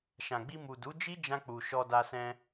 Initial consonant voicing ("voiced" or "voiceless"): voiceless